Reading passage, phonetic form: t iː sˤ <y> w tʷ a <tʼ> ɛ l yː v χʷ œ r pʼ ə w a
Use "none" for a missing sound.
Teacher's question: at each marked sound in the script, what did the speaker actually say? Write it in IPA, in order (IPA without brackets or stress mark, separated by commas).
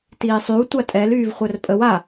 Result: y, tʼ